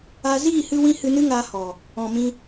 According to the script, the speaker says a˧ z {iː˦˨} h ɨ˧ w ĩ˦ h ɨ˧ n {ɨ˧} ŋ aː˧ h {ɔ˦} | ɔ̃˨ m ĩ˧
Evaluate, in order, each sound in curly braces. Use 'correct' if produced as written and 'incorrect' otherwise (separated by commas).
correct, incorrect, incorrect